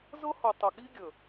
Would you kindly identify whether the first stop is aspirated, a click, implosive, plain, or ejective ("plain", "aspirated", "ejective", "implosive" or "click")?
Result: plain